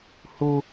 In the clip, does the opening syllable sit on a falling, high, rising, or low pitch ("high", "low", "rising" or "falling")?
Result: high